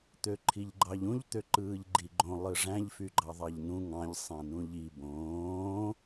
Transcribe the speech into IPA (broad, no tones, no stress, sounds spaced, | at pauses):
t̪ ø ǃʰ i ʎ ɡ͡ǃ ɑ ʎ ũ ʎ t̪ ø ǃ ɯː ʎ ɡ͡ǃ i ɡ͡ǃ õ lˠ ɯ ʐ æ̃ ʎ f y ɡ͡ǃ ɑ ðˤ ɑ ʎ n ũ ŋ ɑ̃ ʎ sˤ æ̃ n ũ ʎ i b õː